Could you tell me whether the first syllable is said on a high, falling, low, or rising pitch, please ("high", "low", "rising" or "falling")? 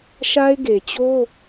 high